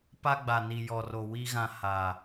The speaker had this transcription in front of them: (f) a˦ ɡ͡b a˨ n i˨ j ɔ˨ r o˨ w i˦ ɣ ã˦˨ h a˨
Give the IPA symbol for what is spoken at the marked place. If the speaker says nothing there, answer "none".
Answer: p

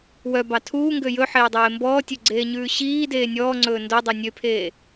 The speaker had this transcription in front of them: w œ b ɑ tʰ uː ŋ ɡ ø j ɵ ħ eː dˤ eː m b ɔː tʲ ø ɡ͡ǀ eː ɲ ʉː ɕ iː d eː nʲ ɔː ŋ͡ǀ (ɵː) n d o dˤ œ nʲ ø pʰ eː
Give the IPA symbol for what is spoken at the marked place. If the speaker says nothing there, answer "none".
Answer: ɵː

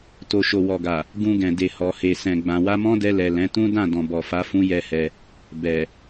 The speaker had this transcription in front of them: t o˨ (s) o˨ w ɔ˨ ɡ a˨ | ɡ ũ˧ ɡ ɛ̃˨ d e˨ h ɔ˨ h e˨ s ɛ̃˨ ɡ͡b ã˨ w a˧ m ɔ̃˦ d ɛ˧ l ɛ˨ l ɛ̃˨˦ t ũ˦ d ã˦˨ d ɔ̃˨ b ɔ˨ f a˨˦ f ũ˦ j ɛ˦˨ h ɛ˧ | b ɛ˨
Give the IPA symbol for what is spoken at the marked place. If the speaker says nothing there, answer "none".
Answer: ʃ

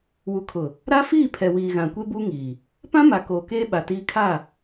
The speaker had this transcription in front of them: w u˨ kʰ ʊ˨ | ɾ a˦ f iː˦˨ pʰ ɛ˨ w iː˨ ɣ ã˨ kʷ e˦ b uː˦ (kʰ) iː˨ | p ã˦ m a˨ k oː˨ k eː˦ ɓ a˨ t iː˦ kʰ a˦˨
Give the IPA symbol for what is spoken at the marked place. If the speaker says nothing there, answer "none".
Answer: ŋ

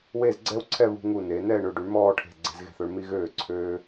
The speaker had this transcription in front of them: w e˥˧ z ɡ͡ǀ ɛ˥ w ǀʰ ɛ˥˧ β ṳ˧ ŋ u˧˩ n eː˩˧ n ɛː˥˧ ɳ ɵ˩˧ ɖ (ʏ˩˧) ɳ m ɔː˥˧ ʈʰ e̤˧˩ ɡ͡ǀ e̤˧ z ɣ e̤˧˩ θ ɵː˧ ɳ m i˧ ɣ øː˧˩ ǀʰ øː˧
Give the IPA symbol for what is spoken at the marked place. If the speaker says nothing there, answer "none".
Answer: y˩˧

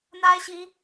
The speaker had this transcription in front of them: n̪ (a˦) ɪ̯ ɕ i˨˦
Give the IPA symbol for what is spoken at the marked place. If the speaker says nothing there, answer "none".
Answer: a˦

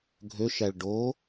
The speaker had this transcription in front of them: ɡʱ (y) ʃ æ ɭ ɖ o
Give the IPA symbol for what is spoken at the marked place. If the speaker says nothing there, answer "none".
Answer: ø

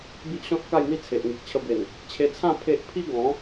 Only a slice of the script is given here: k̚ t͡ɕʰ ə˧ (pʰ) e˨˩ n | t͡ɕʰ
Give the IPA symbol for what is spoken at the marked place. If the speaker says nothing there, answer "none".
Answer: b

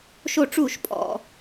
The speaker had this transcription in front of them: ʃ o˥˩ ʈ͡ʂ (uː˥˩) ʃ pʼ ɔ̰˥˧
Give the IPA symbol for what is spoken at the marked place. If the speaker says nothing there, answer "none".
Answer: uː˥˩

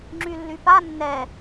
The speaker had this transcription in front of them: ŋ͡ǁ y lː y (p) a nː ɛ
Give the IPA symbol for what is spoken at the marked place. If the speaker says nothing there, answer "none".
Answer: p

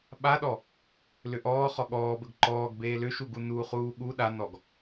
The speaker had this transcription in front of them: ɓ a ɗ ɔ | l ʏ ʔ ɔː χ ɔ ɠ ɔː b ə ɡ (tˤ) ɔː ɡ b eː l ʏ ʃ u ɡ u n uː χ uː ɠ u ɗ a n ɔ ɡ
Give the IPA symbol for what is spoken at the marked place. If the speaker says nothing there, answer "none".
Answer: ǃ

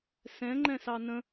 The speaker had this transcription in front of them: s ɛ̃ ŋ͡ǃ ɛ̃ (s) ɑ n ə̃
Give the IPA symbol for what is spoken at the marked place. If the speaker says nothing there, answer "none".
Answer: s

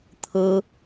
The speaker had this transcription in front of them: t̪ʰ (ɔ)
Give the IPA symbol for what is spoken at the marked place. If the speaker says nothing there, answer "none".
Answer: ɤ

